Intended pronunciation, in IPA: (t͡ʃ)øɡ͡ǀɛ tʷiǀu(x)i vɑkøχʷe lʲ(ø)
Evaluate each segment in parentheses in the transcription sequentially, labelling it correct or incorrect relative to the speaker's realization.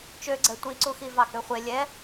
correct, correct, incorrect: ɛ

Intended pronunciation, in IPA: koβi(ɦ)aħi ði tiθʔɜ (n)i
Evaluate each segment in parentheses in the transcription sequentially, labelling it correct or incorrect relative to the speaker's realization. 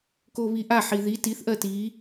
incorrect: ʔ, incorrect: t

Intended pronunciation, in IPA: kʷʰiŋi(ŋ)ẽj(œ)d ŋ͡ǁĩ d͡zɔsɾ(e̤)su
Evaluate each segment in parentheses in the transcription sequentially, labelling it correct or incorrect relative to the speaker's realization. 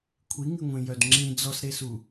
incorrect: ŋʷ, correct, incorrect: e

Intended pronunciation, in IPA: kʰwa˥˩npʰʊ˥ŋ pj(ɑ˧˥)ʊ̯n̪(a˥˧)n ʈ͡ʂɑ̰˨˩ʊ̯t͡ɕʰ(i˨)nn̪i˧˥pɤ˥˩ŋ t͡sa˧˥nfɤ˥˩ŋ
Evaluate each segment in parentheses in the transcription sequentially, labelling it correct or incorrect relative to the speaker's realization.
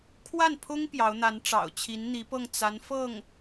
correct, incorrect: a˧˥, incorrect: i˧˥

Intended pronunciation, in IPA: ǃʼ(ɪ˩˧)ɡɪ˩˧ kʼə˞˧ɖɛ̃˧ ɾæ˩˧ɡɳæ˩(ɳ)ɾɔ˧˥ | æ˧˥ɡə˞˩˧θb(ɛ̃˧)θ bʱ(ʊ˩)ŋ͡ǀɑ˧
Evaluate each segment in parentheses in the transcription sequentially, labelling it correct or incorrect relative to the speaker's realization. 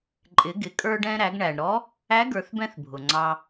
correct, correct, correct, correct

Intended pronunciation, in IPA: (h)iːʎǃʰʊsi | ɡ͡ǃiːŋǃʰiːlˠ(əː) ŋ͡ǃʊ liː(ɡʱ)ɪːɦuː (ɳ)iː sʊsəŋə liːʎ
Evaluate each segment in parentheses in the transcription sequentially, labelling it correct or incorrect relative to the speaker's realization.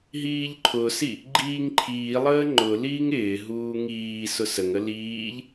incorrect: ɦ, correct, incorrect: ŋ, incorrect: ŋ

